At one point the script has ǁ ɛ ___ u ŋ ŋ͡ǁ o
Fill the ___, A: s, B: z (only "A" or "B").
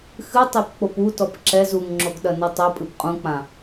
B